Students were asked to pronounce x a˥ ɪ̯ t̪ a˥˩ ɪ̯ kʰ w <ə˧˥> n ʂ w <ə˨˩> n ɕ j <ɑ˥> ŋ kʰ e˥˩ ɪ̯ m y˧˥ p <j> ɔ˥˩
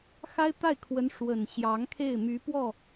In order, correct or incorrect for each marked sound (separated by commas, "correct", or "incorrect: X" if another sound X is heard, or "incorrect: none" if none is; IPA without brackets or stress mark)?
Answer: correct, correct, incorrect: ɑ˧˥, incorrect: w